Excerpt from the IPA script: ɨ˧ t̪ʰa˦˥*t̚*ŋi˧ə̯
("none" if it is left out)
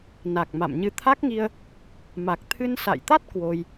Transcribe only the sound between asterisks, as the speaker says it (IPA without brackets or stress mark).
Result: k̚